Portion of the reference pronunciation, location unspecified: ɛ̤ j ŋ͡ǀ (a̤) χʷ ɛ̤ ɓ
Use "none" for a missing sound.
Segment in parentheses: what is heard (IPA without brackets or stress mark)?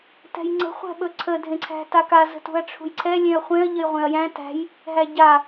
ə̤